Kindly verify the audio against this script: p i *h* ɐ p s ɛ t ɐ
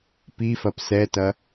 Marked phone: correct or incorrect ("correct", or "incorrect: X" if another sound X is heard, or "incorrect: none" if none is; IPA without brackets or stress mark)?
incorrect: f